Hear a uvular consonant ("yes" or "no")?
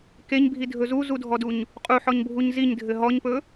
yes